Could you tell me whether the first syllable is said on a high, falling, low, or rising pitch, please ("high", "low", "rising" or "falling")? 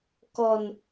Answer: low